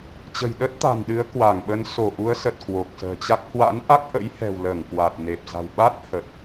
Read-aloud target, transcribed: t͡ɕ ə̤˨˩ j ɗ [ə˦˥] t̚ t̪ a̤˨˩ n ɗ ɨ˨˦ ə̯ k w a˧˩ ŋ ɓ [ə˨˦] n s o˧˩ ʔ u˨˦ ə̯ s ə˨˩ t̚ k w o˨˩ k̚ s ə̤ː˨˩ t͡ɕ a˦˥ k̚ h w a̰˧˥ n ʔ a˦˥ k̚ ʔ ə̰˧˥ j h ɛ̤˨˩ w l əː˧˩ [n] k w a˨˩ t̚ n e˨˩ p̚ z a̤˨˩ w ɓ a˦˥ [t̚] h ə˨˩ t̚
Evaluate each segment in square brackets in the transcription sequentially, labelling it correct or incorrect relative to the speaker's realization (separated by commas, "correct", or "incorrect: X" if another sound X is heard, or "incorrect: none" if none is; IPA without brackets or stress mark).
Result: correct, correct, incorrect: ŋ, correct